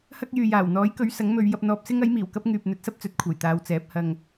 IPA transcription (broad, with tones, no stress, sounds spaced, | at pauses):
h ɐ˥ k̚ j yː˨ j aː˨˩ w n̪ ɔː˨˥ j k ɵ˨˥ ɥ s ɐ˨˥ ŋ m ɵ˨˧ ɥ j ɐ˧ p̚ n̪ ɔː˧ p̚ s ɪ˥ ŋ ɐ˨˥ j m iː˨˩ w k ɐ˥ p̚ ŋ yː˨ p̚ n̪ ɵ˨˥ t̚ s ɐ˥ p̚ t͡s ɵ˨˥ t̚ kʷʰ ɐ˨˩ j t̪ aː˨˧ w t͡s ɛː˨˥ p̚ h ɐ˧ ŋ